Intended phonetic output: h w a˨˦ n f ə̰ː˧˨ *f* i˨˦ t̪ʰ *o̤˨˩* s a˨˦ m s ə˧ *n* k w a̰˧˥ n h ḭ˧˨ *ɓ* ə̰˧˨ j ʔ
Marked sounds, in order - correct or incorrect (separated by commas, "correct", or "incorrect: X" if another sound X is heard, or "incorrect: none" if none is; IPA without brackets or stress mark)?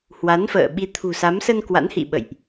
incorrect: ɓ, incorrect: ṳ˨˩, correct, correct